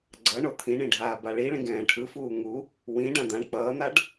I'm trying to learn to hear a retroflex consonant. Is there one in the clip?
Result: yes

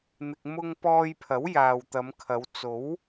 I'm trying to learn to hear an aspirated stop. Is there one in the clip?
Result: yes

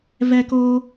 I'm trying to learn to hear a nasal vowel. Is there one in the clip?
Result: no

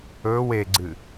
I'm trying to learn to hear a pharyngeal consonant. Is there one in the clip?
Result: no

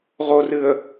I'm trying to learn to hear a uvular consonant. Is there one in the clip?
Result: yes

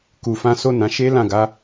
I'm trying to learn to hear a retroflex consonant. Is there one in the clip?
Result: no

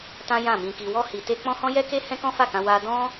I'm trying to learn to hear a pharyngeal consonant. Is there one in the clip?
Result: no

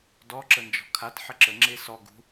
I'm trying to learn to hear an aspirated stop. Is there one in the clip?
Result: yes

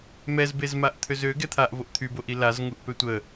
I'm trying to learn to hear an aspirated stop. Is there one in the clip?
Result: yes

